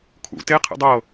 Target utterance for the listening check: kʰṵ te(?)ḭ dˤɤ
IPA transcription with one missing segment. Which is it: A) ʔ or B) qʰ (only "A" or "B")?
B